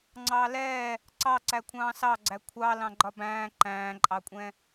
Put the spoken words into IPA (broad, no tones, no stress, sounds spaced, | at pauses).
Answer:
ŋ͡ǀ ɑː l ɛː | ǀ ɑ ǀ æ kʷʰ ɑ̃ː s ɑ ɡ͡ǀ æ kʷʰ ɑ l ɑ̃ ɡ͡ǃ ɒ b æ̃ː ǃ æ̃ː ǃʼ ɑ kʷʼ ɛ̃